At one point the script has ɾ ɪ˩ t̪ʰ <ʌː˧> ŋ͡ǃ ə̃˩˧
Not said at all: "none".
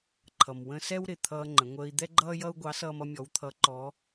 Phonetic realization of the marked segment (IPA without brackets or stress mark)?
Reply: ʌː˧